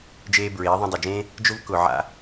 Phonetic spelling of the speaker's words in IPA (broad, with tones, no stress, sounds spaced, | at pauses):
d͡ʒ eː˦ b ɹ eː˨˦ ðˤ õ˧ dˤ ʌ˨ d͡ʒ ẽː˦ | d͡ʒ ʊ˦ v k ʊ˨ ʕ a̰˧